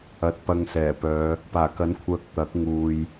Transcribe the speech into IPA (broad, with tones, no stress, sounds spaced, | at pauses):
ɐ˨ t̚ p ɐ˧ ŋ s ɛː˨˩ p œː˨˧ | p aː˨˩ k ɐ˨˥ n kʷʰ œː˨ k̚ t̪ ɐ˨˥ k̚ ŋ uː˨ j